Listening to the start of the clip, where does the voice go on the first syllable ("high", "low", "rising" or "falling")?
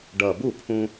low